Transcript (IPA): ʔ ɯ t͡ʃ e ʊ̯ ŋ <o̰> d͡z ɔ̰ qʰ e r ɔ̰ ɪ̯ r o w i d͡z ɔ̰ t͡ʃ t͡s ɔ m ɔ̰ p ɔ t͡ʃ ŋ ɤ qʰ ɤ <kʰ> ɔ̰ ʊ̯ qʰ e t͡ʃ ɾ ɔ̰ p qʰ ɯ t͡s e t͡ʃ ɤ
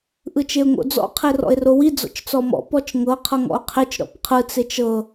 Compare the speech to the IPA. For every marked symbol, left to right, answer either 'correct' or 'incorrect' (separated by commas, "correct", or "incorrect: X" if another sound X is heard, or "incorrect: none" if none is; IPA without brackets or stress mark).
correct, incorrect: ŋ